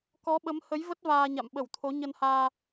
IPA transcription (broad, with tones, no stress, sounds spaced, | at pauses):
k ɔ˨˦ ɓ ə˨˦ m h ə˨˦ j v ə˦˥ t̚ v aː˧ ɲ a̰˧˨ m ɓ ə˧˩ w t̪ʰ o˨˦ ɲ ə˧ n h aː˧